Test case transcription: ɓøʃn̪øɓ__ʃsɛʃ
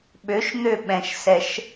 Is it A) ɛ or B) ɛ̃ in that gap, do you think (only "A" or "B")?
B